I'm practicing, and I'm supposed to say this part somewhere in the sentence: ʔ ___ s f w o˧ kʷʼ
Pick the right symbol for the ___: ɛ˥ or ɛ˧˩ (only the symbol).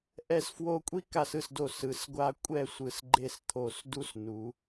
ɛ˧˩